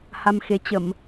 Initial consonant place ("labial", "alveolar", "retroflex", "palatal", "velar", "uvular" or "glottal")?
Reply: glottal